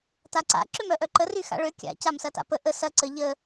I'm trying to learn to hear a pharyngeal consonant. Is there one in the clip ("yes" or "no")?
no